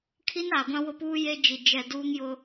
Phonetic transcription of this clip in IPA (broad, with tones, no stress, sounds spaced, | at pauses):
kʰ i˦ n a˨ ɡʷ ã˦ w ʊ˦ p uː˦ j e˦ d͡ʒ i˨ d͡ʒ ɛ˨ d uː˦ ŋ j ʊ˦